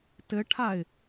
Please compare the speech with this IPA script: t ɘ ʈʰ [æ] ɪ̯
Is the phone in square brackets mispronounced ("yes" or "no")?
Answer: yes